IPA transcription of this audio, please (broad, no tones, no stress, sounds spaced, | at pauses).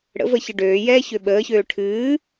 ɽ ə̰ v ə ç ɨ ɖ øː j ɛː ç ø ɓ əː ç øː ʈʰ ɨː